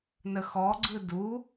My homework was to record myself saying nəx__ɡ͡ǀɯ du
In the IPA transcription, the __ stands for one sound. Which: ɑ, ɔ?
ɔ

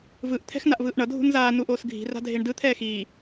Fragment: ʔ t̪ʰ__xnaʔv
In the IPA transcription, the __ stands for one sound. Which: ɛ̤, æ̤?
ɛ̤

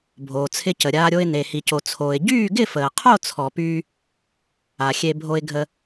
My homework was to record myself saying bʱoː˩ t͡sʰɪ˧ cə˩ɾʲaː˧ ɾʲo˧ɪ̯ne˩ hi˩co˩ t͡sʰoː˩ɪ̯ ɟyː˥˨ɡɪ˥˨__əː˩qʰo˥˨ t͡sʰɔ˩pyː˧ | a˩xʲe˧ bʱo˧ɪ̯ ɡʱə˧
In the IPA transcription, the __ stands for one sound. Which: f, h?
f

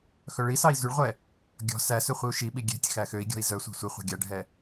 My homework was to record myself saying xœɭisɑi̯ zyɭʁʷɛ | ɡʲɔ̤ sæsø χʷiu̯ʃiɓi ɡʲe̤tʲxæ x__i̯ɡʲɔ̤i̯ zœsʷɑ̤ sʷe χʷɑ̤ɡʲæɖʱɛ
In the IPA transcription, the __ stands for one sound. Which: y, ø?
ø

